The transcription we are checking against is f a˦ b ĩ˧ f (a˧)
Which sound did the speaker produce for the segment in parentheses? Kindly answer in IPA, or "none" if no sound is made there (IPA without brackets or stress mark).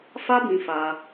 a˧